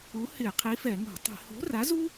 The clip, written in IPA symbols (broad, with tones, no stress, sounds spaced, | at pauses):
u˨˥ h ɪ˧˩˧ qʰ i˨˥ f ɛ˧˩˧ ŋ o̤˧˩˧ tˤ i̤˧˩˧ h o̤˨˥ r a˨˥ z u˥